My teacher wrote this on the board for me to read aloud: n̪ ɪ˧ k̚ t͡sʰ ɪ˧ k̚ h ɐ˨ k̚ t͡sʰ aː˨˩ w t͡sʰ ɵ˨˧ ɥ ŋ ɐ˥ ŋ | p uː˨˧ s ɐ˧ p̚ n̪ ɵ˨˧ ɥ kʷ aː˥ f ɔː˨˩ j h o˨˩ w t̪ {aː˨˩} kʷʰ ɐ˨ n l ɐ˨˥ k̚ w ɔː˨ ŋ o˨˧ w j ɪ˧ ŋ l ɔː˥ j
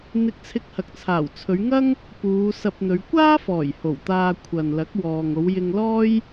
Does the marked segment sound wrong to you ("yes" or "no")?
yes